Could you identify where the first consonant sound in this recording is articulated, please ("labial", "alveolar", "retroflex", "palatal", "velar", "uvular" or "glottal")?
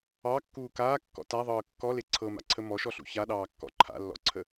velar